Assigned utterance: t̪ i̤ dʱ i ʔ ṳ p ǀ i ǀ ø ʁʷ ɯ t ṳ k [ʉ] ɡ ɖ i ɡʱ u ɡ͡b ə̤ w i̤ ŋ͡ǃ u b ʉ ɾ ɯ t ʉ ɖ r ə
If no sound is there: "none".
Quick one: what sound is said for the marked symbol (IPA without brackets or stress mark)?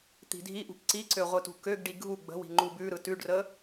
ø